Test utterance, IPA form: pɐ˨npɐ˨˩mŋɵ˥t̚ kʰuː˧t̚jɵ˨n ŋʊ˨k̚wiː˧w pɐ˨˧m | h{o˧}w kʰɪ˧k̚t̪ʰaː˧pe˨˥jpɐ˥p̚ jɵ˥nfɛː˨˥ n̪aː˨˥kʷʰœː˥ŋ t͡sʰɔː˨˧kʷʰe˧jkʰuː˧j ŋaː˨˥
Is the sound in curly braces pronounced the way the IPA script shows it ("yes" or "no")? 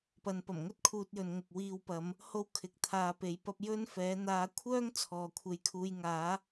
no